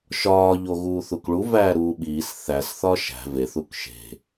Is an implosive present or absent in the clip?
present